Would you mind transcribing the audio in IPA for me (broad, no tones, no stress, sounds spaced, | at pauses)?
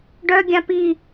ɖ œ ɡʲ ã p i